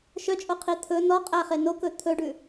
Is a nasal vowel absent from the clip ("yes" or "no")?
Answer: yes